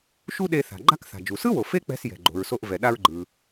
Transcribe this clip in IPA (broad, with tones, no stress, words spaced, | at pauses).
ʃu˥ɗe˧ θa̤˩ɡ͡ǃa̤˥kθa̤˩ d͡ʒu˩sɯ˥wo˩ fe˥k͡pɛ̤˧s jɛ̤˩ɡ͡ǃo̤˩ɹso˧ʔ vɛ˩ ɗa˧ɹɡ͡ǃɯ˩